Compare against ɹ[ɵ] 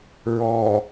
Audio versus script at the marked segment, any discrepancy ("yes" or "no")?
yes